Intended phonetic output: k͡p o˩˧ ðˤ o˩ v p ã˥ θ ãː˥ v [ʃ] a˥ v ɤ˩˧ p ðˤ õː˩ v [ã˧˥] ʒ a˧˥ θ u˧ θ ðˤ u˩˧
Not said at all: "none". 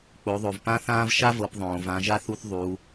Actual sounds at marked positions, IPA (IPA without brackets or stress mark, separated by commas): ʃ, ã˩˧